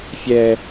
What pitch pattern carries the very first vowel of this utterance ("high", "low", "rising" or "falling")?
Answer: high